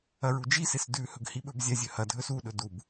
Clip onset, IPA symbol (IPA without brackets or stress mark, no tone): ɐ